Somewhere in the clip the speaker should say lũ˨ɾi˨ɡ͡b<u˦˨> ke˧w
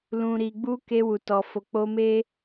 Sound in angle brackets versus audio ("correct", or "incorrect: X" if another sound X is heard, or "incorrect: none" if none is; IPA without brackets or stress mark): incorrect: u˧